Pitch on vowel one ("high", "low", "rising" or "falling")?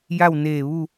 falling